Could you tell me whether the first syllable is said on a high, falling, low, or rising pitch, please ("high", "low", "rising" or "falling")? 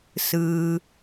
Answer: low